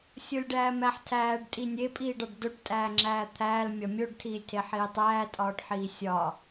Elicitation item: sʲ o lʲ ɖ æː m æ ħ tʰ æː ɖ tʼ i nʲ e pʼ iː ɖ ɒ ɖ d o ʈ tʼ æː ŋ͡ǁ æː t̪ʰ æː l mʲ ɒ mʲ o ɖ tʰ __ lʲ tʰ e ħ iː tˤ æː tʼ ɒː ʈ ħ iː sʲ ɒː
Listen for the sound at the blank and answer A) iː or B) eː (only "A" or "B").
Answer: A